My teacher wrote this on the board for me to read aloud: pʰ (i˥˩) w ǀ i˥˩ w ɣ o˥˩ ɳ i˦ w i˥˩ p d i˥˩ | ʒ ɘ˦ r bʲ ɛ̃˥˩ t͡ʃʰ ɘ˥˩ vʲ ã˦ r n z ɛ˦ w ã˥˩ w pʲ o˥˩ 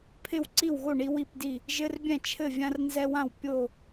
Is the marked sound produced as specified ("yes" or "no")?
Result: no